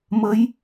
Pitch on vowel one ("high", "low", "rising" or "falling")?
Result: rising